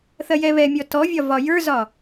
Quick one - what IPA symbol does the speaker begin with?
θ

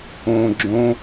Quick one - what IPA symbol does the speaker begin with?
õ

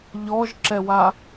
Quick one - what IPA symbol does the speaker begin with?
ʎ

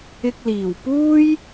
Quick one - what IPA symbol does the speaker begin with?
ɪ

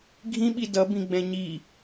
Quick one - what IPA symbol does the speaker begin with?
ɡʱ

